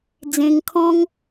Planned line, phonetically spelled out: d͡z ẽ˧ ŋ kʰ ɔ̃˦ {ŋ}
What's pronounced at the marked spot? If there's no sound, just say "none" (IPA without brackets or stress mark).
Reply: ŋ